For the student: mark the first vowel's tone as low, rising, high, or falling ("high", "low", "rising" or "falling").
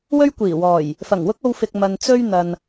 high